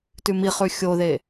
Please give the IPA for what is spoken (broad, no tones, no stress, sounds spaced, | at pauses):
t ʉ m i χ ʉ xʲ o ð e